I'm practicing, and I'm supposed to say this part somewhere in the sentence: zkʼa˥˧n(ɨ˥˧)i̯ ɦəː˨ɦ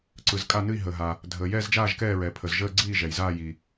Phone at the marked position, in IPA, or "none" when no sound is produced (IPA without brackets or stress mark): ɨ˥˧